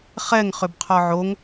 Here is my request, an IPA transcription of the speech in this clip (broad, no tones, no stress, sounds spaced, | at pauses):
χ ɛ ŋ χ ʏ b qʰ ɔ ʕ o ŋ